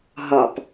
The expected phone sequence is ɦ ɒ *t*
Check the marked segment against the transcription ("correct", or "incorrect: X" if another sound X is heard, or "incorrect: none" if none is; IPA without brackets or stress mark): incorrect: p